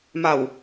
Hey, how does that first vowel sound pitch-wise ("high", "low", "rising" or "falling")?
low